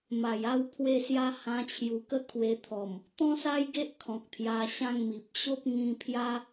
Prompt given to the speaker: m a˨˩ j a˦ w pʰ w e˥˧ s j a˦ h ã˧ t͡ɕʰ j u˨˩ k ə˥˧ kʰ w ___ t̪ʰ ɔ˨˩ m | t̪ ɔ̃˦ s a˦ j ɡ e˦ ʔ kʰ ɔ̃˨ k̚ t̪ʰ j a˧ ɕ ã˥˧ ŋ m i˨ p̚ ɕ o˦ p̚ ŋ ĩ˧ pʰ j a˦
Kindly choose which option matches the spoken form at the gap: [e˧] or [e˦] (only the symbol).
e˧